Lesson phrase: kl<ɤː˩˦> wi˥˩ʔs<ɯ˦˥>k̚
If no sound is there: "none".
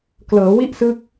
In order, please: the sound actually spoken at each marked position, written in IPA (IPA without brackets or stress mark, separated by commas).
ɤː˩˦, ɯ˦˥